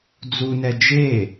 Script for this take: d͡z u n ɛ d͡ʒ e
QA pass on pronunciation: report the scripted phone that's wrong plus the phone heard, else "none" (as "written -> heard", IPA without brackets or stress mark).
none